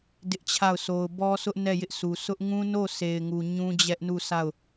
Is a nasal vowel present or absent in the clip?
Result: present